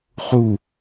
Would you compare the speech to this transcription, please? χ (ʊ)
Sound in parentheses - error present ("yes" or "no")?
yes